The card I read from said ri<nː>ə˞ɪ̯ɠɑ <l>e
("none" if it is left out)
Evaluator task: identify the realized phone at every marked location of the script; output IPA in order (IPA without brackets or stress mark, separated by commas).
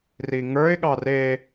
ŋ, r